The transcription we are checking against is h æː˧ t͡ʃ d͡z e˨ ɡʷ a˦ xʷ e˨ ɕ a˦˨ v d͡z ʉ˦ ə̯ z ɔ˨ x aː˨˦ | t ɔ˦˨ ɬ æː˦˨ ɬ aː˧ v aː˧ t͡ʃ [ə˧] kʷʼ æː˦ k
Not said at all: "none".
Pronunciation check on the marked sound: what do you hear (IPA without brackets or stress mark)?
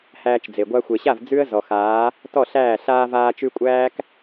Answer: ʉ˧